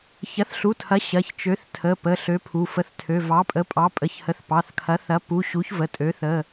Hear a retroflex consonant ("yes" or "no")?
no